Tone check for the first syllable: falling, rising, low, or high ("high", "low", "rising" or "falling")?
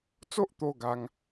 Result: high